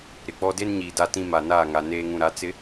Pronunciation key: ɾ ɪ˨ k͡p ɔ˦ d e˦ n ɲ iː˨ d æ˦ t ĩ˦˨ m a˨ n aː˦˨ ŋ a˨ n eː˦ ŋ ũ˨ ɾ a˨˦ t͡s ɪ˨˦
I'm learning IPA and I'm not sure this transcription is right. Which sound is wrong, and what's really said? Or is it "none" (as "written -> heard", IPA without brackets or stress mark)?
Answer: æ˦ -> a˦